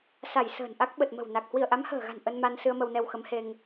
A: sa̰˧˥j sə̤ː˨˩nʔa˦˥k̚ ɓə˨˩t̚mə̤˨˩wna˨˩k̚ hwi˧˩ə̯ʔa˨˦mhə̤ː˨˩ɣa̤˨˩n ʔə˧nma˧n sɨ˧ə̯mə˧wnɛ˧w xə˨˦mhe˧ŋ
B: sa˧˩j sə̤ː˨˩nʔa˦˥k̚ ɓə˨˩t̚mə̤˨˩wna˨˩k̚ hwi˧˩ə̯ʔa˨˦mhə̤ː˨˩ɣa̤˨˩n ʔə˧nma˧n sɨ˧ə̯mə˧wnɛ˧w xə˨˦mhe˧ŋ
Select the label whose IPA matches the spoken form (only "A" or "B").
B